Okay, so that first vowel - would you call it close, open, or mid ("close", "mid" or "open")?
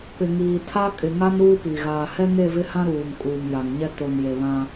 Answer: close